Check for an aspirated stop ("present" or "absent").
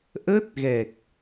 absent